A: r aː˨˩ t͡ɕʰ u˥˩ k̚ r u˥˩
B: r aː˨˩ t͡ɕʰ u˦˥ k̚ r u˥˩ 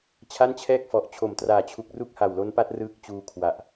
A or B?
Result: B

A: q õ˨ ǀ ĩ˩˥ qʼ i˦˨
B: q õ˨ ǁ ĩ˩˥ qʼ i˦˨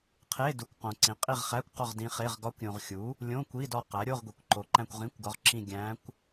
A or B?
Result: A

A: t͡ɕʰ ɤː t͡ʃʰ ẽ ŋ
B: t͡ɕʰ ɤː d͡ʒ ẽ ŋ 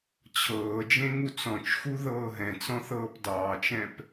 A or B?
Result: B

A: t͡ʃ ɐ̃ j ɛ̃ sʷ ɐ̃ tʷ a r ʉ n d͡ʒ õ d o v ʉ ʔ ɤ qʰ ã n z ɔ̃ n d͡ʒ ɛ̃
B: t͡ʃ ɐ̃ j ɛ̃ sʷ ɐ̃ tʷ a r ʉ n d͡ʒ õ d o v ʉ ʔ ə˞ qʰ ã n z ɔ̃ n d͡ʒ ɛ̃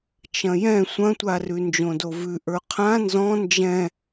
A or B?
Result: B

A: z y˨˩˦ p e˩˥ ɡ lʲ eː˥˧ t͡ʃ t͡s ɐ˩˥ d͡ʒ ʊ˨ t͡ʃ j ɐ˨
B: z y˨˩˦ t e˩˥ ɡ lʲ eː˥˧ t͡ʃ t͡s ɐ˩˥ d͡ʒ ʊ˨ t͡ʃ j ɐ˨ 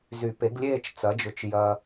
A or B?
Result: A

